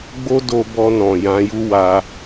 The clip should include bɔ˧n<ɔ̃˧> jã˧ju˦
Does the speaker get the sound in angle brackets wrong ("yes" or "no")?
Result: yes